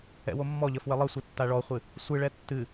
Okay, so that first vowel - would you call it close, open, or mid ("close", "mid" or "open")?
mid